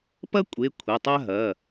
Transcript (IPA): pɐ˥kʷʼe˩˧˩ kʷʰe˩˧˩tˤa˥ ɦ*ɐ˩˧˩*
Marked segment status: correct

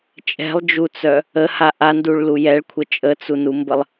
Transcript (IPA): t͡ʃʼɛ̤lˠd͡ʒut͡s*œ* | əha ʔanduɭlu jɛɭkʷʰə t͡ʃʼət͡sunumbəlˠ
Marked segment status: correct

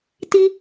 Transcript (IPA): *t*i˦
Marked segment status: correct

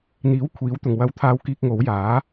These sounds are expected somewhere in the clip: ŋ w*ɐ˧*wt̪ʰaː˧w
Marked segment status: correct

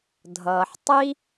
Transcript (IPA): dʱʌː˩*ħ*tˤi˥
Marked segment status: correct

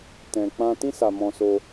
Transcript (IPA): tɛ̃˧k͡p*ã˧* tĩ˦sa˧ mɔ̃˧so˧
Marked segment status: incorrect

